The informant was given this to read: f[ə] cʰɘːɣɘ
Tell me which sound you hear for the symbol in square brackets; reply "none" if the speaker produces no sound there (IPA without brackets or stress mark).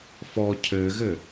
ɔ